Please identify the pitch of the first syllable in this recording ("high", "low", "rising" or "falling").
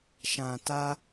low